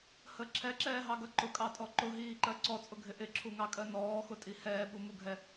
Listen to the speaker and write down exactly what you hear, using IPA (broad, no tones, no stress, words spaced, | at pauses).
hə ǁʰɛǁɛːɦɑɡʌ ǃʊkʼɑtʼɔ ǃʊɦiːǃɜ ǀɔt͡sʼʊɡʱɪ ʔɪǁʰuŋɑkʼɜ nɔːxʊtʼi hɛːɓumuɡʱɛ